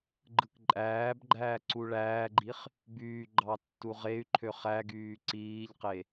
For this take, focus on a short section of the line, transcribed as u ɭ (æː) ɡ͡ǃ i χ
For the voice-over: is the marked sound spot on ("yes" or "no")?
yes